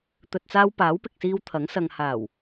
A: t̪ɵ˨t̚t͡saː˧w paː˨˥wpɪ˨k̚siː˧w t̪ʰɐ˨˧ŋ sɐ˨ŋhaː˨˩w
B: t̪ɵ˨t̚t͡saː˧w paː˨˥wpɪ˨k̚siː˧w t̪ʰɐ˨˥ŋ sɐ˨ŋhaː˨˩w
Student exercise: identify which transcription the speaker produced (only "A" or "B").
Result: B